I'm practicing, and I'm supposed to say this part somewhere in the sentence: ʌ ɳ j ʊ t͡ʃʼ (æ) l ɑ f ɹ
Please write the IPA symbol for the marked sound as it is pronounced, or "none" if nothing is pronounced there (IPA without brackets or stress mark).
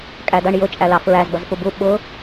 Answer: æ